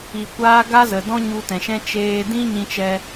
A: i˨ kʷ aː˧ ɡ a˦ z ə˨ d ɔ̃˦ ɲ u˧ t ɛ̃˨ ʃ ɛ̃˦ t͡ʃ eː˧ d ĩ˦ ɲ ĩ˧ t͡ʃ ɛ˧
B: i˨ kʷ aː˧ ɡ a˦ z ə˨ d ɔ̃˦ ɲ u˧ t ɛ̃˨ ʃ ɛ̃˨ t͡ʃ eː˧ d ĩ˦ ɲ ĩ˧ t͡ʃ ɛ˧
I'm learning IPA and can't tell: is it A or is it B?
A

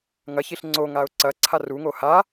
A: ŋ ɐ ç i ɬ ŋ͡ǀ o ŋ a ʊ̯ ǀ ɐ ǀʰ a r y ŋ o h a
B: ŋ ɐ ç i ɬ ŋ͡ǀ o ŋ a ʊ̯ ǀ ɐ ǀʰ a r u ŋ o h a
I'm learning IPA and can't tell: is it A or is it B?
B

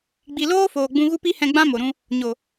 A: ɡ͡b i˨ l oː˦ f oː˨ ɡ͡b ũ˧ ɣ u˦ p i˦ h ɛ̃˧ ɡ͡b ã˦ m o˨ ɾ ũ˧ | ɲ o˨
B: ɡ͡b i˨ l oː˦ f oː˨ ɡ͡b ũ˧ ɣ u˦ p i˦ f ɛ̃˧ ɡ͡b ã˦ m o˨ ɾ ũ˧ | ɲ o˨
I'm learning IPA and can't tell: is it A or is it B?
A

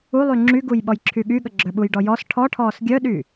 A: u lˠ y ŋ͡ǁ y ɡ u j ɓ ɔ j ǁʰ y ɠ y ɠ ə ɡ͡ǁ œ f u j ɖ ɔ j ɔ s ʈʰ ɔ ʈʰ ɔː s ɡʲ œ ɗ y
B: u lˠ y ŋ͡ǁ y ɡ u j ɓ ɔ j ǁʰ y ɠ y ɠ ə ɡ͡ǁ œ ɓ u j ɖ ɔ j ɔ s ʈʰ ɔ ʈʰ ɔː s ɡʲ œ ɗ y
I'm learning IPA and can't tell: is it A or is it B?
B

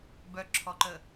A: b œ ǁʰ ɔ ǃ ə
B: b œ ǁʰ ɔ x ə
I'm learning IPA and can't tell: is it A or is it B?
A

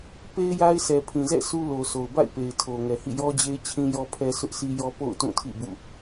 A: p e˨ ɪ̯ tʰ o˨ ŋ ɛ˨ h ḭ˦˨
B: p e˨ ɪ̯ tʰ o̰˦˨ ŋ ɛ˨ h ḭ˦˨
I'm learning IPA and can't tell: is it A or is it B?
A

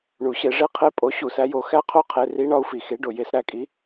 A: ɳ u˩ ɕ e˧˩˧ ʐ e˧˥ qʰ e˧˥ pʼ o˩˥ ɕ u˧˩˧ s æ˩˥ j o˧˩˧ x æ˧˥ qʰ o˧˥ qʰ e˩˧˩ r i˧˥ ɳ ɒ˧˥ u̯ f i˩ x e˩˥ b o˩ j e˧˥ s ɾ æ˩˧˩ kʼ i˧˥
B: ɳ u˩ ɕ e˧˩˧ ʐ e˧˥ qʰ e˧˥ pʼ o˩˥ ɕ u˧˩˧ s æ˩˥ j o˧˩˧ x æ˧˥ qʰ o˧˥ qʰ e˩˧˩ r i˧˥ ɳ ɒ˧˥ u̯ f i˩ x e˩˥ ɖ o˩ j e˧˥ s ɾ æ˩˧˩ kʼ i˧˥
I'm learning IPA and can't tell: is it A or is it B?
B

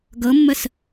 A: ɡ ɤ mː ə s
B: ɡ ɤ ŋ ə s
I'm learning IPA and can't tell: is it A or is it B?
A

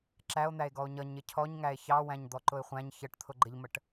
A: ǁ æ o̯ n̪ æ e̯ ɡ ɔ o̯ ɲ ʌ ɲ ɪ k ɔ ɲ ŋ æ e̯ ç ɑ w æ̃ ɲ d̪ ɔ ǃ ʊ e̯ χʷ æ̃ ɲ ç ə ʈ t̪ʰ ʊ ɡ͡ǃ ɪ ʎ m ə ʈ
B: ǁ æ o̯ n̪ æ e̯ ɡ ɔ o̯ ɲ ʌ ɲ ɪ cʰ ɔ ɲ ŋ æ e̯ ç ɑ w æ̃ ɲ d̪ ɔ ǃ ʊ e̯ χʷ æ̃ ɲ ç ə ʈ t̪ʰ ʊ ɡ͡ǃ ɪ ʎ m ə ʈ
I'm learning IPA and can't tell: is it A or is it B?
B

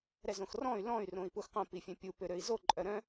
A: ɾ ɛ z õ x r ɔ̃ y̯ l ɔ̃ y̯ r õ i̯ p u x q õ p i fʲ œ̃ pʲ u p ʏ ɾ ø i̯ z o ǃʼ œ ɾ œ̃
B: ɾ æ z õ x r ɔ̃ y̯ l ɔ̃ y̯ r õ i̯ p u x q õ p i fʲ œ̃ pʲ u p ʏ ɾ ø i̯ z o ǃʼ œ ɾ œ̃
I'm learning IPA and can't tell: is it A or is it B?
A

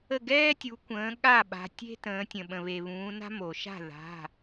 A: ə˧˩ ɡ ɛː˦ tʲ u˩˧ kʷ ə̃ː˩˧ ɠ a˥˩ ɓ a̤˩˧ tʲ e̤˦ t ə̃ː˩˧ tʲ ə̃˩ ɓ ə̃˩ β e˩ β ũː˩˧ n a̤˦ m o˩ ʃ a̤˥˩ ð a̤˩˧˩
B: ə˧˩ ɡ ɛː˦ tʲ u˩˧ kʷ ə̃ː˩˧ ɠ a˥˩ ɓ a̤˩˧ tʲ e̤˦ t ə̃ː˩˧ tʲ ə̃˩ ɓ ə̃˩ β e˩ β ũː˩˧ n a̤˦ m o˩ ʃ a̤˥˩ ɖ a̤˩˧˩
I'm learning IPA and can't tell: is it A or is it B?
A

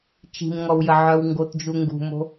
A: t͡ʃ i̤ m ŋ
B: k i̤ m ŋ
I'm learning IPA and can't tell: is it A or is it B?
A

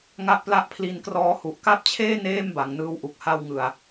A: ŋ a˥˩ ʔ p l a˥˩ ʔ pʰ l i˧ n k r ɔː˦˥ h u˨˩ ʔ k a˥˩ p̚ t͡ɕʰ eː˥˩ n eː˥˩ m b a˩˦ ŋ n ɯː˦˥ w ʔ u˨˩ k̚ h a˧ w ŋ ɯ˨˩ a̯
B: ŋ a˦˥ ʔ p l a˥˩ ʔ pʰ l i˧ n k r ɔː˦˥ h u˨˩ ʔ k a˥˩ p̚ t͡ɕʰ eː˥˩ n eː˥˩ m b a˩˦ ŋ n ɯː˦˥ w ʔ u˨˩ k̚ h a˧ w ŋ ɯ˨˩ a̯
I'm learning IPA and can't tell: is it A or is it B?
A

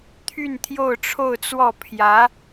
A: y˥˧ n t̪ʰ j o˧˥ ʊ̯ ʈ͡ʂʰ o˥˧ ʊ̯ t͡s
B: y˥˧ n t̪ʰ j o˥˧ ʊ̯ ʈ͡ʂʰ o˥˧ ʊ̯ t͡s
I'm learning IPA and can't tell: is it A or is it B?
B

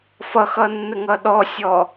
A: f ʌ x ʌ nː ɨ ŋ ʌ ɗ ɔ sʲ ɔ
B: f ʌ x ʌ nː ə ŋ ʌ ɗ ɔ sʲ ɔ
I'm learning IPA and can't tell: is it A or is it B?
B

